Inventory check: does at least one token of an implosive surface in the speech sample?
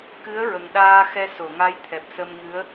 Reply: yes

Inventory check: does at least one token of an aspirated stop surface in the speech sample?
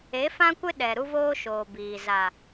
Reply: no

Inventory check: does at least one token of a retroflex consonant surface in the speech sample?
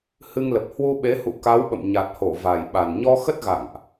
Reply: no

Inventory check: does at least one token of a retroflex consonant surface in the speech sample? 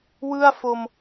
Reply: no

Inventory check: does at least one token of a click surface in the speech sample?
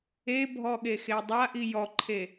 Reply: yes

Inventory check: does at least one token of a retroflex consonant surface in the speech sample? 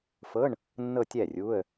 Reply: yes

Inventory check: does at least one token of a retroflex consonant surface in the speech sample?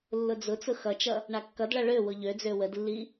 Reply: yes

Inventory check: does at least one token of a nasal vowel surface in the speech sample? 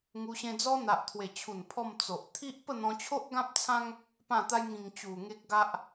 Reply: yes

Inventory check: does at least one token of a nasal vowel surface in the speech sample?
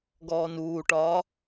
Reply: no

